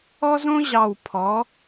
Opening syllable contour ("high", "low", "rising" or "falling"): high